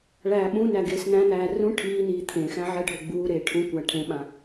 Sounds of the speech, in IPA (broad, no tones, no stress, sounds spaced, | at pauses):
ɭ æː ɓ ũ n æ ɡ eː s n̪ æ̃ n̪ æː r ũ ʈʰ iː n iː t̪ʰ ẽ x æ̃ ʕ ɛ ɖʱ o ɡ͡b uː ɾ eː ʈʰ ũ kʷ æ ʈʰ ẽ ɓ ã